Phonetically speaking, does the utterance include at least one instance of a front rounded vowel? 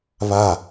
no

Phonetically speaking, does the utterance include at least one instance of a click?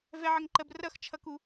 yes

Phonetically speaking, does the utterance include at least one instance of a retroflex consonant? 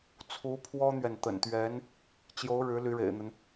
yes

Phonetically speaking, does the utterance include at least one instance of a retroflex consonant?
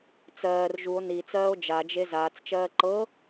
no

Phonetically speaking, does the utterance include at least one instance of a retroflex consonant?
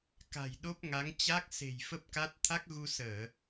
no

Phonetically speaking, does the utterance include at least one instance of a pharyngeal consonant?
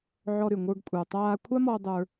yes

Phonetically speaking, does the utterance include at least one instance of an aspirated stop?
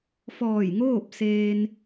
no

